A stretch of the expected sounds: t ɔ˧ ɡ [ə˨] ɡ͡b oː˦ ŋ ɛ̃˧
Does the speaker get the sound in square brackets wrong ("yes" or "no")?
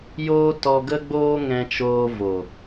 yes